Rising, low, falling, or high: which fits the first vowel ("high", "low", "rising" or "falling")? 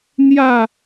falling